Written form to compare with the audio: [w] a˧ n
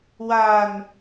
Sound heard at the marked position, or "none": w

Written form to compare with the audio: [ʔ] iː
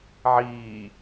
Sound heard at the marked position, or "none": ʕ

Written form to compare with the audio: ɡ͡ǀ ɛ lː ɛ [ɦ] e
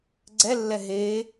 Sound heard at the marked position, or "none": ɦ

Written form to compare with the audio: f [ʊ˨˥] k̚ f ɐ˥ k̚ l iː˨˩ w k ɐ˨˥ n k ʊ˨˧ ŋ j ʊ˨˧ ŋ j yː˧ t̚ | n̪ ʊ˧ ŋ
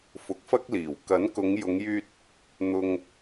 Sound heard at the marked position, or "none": ʊ˨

